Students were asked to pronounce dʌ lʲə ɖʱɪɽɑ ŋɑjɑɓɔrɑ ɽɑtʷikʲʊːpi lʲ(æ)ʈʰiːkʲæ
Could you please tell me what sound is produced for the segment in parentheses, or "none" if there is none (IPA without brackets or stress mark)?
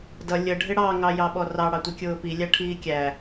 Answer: æ